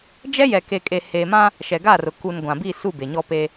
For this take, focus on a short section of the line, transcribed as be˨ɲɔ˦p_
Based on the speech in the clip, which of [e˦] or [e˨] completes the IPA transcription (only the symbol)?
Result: e˦